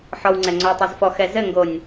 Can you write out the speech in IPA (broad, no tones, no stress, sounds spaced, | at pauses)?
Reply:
ħ ɔ w ŋ͡ǀ ɛ ŋ͡ǀ o w tˤ o z f ɔ x ɛ z ɘ ŋ ɡ o nʲ